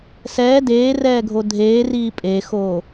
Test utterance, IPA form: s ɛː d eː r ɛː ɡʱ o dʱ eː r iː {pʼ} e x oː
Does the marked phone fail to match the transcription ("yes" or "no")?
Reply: no